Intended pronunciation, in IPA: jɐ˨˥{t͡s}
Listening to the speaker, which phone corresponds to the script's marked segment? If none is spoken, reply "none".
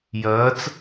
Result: t͡s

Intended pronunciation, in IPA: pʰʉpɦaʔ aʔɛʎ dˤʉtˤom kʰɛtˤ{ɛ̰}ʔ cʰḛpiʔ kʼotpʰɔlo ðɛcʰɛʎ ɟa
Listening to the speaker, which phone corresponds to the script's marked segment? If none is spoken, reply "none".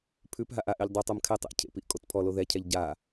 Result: ḛ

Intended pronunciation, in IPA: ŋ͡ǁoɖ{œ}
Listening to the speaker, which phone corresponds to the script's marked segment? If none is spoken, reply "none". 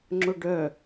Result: œ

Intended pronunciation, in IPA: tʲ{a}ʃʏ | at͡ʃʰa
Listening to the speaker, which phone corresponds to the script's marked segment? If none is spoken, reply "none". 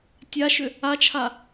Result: a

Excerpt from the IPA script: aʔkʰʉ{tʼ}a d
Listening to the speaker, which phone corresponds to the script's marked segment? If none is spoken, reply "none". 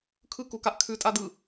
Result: tʼ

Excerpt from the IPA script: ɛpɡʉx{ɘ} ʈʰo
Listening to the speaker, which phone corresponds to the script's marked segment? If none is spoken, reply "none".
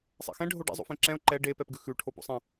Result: ʉ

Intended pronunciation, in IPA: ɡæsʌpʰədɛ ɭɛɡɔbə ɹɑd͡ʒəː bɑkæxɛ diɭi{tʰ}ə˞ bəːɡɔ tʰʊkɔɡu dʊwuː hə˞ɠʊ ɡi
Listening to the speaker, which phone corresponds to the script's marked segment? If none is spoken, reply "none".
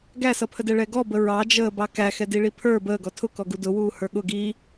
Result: pʰ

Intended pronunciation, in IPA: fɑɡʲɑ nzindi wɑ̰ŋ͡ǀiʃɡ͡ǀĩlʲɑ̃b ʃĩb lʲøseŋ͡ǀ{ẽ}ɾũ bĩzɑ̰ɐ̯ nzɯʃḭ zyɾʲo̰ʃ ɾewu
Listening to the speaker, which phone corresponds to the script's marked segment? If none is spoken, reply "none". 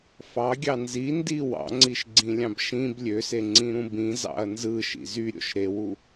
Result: ĩ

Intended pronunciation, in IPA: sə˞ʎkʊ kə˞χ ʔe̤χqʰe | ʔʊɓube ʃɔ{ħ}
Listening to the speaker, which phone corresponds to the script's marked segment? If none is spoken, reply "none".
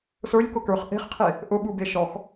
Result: x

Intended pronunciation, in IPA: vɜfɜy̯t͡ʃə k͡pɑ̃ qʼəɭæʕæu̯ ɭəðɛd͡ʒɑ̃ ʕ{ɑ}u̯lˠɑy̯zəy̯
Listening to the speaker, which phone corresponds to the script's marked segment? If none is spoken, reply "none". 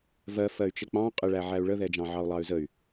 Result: ɑ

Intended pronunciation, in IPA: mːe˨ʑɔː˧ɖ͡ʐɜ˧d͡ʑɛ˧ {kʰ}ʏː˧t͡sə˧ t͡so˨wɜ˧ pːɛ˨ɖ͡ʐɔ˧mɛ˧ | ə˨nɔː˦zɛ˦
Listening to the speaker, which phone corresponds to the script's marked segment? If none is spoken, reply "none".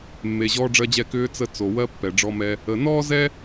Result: k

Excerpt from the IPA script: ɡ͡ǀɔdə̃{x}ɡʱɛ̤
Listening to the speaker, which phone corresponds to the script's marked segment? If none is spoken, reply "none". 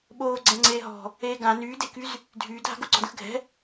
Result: x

